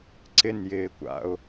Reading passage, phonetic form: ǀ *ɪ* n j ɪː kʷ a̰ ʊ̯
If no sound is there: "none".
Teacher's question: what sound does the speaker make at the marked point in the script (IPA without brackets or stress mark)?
ɪ